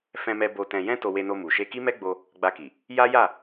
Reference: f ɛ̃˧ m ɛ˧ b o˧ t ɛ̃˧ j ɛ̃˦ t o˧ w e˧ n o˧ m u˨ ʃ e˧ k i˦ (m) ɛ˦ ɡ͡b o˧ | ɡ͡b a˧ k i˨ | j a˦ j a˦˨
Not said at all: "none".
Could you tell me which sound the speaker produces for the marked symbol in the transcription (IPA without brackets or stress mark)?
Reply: m